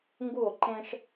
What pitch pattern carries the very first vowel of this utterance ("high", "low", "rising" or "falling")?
falling